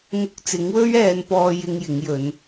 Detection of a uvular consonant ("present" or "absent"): absent